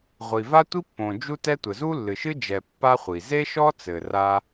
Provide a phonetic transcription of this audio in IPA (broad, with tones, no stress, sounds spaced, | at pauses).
ʁʷ i˩ v a˥ tʷ i˥ pː õ˩ d͡ʒ u˥ t ɛ˥ tʷ ɘ˩ z u˥ lː ɨ˩ ʃ ɨ˥ d͡ʒ ɛ˩ pː a˥ χʷ i˩ z e˥ ʃ ɔ˥ t͡s ɘ˩ r a˥